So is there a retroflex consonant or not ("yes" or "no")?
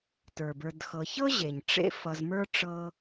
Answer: yes